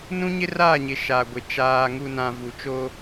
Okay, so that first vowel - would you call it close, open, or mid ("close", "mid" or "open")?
close